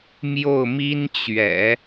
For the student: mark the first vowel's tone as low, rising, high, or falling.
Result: falling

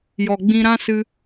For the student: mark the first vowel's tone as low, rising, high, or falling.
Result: low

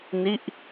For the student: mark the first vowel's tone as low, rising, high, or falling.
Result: falling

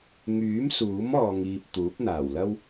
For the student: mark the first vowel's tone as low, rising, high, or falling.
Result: rising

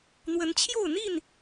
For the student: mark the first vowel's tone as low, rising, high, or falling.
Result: rising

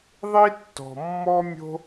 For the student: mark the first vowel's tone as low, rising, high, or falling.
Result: high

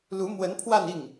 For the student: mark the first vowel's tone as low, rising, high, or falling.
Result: rising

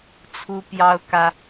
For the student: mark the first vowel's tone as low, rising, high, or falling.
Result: high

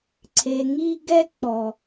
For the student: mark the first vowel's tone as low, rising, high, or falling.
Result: low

